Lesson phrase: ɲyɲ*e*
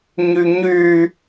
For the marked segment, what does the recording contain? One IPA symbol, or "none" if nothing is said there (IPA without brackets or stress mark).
y